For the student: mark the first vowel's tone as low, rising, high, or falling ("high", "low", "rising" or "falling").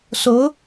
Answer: rising